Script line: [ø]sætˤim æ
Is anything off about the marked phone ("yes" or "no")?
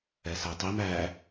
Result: yes